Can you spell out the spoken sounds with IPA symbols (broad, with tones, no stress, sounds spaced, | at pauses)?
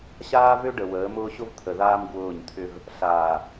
ɕ aː˦ v ø˦ ɖ ə˨ w əː˨˦ m ʊː˦ ɕ ʊ˦ v t̪ʰ ə˨ ð aː˦ m ɡ w ʊː˦˨ ɲ t̪ʰ ʏ˦ v | ɬ aː˨